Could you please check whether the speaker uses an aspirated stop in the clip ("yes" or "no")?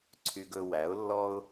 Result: yes